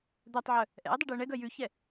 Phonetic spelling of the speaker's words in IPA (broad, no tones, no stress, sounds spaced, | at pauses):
d̪ œ tˤ ʕ œ | ʔ ɛ̰ ʊ̯ dˤ ʉ ɖ ɪ ə̯ ɳ ɛ ɡ œ j ʉ ç ɛ